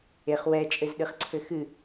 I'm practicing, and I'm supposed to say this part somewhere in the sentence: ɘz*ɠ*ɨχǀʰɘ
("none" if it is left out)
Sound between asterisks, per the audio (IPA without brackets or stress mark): ɗ